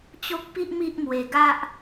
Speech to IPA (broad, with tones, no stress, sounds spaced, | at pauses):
t͡ɕ o˦ k̚ p i˦ ʔ m i˦ ʔ m w e˧ ɡ a˦ ʔ